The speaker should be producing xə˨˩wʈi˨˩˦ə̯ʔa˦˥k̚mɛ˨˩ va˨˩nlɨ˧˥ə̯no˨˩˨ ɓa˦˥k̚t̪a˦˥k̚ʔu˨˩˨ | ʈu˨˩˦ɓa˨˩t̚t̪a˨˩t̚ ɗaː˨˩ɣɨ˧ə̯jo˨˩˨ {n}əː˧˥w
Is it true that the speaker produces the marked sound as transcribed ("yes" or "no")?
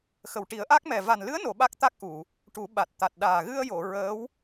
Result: no